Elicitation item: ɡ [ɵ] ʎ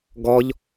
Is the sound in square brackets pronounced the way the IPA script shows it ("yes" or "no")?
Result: no